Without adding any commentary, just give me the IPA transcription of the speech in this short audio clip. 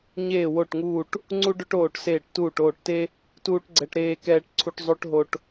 ɲ eː˦˨ w o˦˨ ʈ ŋ uː˦˨ ʈ | ŋ͡ǀ u˥ ɖ ɵ˥ ʈ oː˦˨ ʈ s eː˦˨ ʈ t uː˦˨ ʈ oː˦˨ ʈ t e˥ | t uː˥ ʈ ɡ͡ǀ ɛ˥ ʈ ɾ eː˥ k ɛː˥ ʈ ǀʰ u˥ ʈ zˤ o˥ ʈ ɦ o˥ ʈ

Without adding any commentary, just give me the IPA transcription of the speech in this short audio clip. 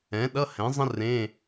ɛ̃˩˥ ɗ ʌ˧˥˧ h ɛ̃˩˥ zˤ ə̃˥ r ẽː˧˥˧

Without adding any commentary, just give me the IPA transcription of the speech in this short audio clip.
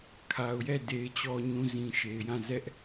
kʰ a˨ ʊ̯ j ɛ˦˨ d e˨ ɪ̯ t͡ɕ ɔ˨ ɲ ũ˨ z ĩ˨ ʃ e˨ ɪ̯ j ã˦˨ z ɛ˦ ʔ

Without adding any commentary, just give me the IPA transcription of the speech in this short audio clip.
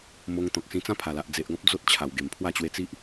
m o˧ ŋ t̪ ɔ̃˨ k̚ s ĩ˧ t͡s ã˦ pʰ a˨˩ l a˨ ʔ d͡z e˨ ʔ ɡ ɔ̃˦ p̚ d͡z o˦ t̚ t͡ɕʰ a˨˩ w ɡ e˨˩ m pʰ w a˥˧ t͡ɕ w e˧ t͡s i˦ ʔ

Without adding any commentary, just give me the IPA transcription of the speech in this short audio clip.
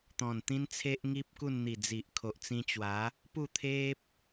t̪ ɔ̃˨˩ n t̪ ĩ˦ n t͡sʰ e˦ ʔ ŋ i˦ p̚ k u˥˧ n n̪ i˨˩ d͡z i˨ ʔ kʰ o˨ ʔ t͡s ĩ˧ t͡ɕ w a˨˦ | p u˥˧ t̪ʰ e˦ p̚

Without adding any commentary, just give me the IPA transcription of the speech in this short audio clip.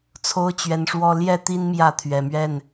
t͡sʰ o˦ ʊ̯ t͡ɕ ɥ ɛ˨˦ n ʂ w ɔ˦ l j ɛ˥˨ t̪ i˦ n m j ä˥˨ t̪ʰ ɥ ɛ˨˩ m ɥ ɛ˥˨ n

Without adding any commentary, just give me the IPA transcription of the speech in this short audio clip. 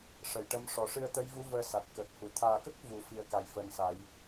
ʂ ə˨˩˨ j ʈ ə˧˥ m ʂ ɔ˨˩˨ ʂ ɨ˧ ə̯ t̪ ə˧˥ j v u˧˥ v əː˧ s a˨˩ t̚ k əː˨˩ k̚ h u˨˩˨ t̪ʰ aː˨˩ k ə˦˥ k̚ v u˨˩˦ f i˨˩ ə̯ k a˨˩ j f əː˨˩ n s a˨˩˦ j

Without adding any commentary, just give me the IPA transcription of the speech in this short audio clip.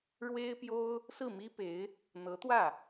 ɻ w e˥ ɪ̯ p j o˥ ʊ̯ | s ɹ̩˥˩ m i˥ p e˧˥ ɪ̯ | n̪ ɤ˧˥ t̪ w ä˥˩

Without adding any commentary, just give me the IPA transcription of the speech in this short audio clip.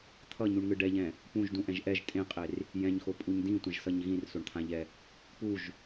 t̪ʰ ʌ ɲ u ɳ ŋ ɯ ɖ ɛ ʎ ɛ̃ | p ũ ʒ d ũ ʔ ɛ̃ ʒ ʔ ɛ ʒ tʼ ẽ qʼ e r | j ɛ̃ ɲ x o pʼ u ɲ d ĩ tʷ ɛ̃ ʒ s ʌ ɲ ɣ ĩ r s o ɳ t̪ʰ ã ʎ ɛ | p u ʒ

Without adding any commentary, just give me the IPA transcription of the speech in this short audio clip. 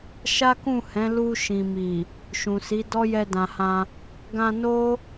ʃ a˦ k ũ˦˨ h ɛ̃˨˦ l u˧ ʃ ĩ˨ m i˨ | ʃ ũ˨ s i˨˦ d ɔ˦ j ɛ˧ d ã˨ h ã˧ | ɡ ã˧ n o˦

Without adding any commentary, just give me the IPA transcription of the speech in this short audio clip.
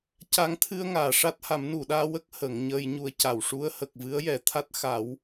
c a˧˥ ŋ t̪ʰ ɨ˧ ə̯ ŋ aː˨˩˨ ʂ a˦˥ t̚ h a˨˩˦ m n u˨˩˨ ɗ aː˧ w ə˦˥ k̚ h ə˨˩˦ ŋ ɲ əː˧ j ɲ u˧ ə̯ c a˨˩ w ʂ u˧˥ ə̯ h ə˨˩ k̚ v ɨ˧˥ ə̯ j ɛ˨˩˦ t̪ʰ a˦˥ t̚ x a˨˩˦ w

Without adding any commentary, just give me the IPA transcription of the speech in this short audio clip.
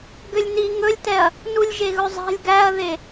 ɡ ø lʲ n i ŋ ɵ lʲ t ɛ ɐ̯ | n u lʲ ʒ e ɣ ɵ zˤ ɛ̤ lʲ ɡ æ ɐ̯ ð e

